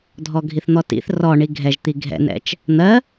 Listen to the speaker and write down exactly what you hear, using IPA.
dʱ ɔ ɡʱ i θ n̪ ɔ t ḭ θ r ɔ ɳ i ɡʱ ɛ ʒ t̪ i ɡʱ ɛ̰ n ɛ̰ t͡ʃ | n̪ ɜ

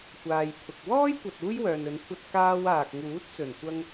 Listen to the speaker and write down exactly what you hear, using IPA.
kʷ aː˨ j pʰ ʊ˨ k̚ w ɔː˥ j kʷ ɐ˨ t̚ uː˥ j w œː˨ n ɵ˨˧ n kʷʰ ɐ˧ t̚ k aː˧ w aː˨ k̚ ŋ uː˨˥ t̚ t͡s ɵ˨˩ n kʷ ɐ˧ ŋ

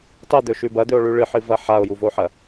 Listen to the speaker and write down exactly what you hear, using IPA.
tˤ e d̪ ɵ ʃ ʉ b ɐ d̪ ɵ o̯ ɭ ʉ ɭ ɨ ħ ɨ v ɐ ħ a o̯ j u v o ħ ɐ

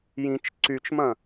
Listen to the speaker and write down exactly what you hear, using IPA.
j ĩ t͡ʃ ǀ y t͡ʃ m ɐ̃

